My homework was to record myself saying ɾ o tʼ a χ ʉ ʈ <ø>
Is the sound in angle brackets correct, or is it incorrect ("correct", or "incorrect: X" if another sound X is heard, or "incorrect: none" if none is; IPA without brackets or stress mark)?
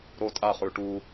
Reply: incorrect: u